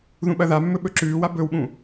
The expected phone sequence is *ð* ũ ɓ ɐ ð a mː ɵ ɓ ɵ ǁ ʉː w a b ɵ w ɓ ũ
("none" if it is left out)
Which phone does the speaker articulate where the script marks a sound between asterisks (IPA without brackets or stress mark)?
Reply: ð